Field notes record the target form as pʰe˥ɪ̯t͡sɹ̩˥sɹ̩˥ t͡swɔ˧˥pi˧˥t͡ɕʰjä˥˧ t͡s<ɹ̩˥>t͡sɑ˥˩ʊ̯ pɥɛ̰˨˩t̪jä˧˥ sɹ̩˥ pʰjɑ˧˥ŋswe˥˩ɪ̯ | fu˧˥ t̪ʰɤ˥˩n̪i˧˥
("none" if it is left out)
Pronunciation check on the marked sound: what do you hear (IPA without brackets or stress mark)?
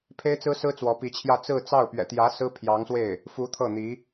ɹ̩˥˧